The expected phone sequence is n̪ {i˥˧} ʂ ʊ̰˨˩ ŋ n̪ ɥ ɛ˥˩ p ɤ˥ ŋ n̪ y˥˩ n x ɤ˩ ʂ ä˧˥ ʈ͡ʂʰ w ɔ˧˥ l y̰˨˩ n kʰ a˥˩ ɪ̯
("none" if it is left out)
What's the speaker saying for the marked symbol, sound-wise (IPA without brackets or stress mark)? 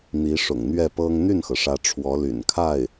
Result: i˧˥